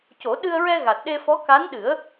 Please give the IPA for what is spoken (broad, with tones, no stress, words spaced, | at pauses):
co˨˩˦ ɗɨ˧ə̯ɹɛ˧ ɣa˨˩t̚ɗe˧fɔ˧˥ ka˧˥nɗɨ˨˩˦ə̯